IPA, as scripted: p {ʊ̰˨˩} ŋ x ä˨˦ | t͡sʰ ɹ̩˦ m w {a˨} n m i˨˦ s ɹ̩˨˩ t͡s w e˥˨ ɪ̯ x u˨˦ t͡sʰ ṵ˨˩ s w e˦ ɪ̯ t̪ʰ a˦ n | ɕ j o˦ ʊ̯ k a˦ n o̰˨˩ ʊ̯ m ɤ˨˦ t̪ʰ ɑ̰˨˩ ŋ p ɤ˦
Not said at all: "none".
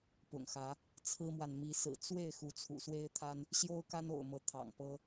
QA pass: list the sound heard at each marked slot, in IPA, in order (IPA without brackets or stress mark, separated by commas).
ʊ̰˨˩, a˨